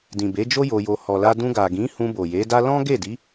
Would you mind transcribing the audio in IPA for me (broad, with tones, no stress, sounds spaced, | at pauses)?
d ĩ˨ b e˨˦ d͡ʒ o˦ j o˧ j o˧ h ɔ˨ l a˧ d ũ˧ ɡ a˨ ɡ ĩ˨˦ h ũ˧ b o˨ j e˨˦ d a˦ l ɔ̃˦ ɡ e˦˨ d i˨˦